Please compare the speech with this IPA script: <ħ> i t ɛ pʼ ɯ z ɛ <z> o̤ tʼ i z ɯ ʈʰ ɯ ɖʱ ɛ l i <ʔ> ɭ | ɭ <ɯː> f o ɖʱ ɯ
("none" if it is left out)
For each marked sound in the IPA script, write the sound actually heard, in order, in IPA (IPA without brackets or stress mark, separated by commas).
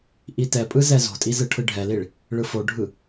ʔ, z, none, ɯ